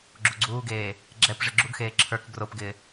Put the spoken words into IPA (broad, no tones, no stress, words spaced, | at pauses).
ɡ͡ǁuɡ͡ǀuːɡeː | ɡ͡ǁɛpʐɪ ɡ͡ǁuɡxeː ǁʰə˞k ɡropɡɪː